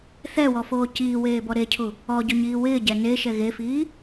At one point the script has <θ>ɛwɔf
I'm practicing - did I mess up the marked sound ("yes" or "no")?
no